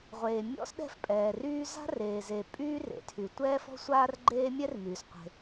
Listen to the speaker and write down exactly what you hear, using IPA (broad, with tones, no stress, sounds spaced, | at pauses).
ʁʷ eː˩ mʲ ɔ̰˥ s ɗ ɛ̤˥ f pʼ ɛː˩ r yː˥ z a̤˥ r eː˩ z e˩ pʼ yː˥ r ḛ˩ tʰ y˩ tʷ ɛː˥ f ɔ̤˥ sʷ aː˥ r ɡ͡ǃ eː˥ mʲ ɛ˥ r m yː˩ s qʷ e̤˩